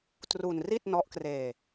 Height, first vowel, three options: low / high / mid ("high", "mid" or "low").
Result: high